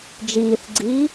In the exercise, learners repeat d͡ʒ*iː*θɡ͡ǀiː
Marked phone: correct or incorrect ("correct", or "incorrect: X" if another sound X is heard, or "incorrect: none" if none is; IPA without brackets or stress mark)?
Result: correct